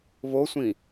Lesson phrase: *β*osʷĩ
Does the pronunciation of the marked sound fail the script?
no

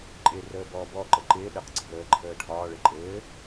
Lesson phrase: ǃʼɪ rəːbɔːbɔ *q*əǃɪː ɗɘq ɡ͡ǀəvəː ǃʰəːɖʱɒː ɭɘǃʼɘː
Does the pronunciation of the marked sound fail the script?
yes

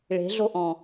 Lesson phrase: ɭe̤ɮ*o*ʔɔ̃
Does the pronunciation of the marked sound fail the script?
no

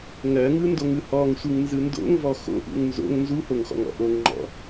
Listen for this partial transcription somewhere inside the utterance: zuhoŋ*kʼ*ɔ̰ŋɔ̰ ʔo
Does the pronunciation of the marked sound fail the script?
yes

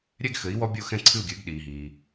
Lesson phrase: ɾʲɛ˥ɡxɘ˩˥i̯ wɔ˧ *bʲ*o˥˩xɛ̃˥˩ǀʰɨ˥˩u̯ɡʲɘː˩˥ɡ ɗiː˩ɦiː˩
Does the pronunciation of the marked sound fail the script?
no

